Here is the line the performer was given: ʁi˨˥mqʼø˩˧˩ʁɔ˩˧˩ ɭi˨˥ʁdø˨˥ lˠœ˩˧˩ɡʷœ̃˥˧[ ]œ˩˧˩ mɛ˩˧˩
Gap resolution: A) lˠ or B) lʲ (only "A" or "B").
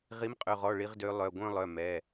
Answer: A